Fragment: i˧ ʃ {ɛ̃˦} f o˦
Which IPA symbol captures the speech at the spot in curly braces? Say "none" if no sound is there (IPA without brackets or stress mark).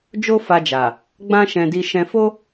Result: ɛ̃˧